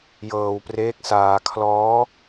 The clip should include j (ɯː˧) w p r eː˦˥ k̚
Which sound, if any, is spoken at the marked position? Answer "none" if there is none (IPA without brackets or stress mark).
ɤː˧